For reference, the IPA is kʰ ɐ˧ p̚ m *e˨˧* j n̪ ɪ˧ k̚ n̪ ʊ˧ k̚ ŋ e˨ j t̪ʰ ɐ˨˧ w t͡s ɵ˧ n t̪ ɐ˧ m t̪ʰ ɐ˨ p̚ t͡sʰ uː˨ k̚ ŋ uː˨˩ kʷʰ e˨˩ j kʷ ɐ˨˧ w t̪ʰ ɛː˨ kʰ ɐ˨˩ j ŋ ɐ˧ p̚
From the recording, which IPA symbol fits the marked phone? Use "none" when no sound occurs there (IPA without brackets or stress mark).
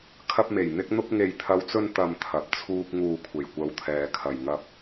e˨˩